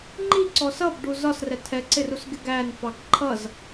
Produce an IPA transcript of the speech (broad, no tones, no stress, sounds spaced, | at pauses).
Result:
ŋ͡ǃ i ǀ ɔ s ʌ b ɖ u z ɒ s r ɛ tʰ ɛ ǀ ɪ r u s ɡ ɪ ɡ æ n f ɑ ɡ ǃʰ ʌ z